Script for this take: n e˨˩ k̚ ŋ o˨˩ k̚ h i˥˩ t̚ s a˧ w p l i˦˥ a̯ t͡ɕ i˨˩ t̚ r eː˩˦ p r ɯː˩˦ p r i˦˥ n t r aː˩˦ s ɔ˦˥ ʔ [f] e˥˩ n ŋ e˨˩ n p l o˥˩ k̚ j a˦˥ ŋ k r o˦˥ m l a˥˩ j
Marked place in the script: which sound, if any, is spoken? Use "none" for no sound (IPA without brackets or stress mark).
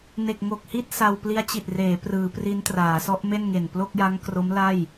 m